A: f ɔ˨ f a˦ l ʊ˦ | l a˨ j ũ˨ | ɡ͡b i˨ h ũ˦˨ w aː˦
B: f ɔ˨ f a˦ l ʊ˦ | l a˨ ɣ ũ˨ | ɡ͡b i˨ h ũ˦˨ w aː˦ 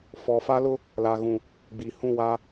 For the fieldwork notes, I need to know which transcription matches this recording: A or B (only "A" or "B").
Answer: B